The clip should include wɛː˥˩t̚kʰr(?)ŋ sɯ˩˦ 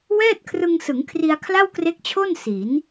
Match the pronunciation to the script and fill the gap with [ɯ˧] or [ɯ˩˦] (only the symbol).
ɯ˧